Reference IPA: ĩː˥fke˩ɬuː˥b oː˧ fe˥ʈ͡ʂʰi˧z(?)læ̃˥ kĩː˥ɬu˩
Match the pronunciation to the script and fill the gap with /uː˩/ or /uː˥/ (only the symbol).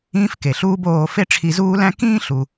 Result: uː˥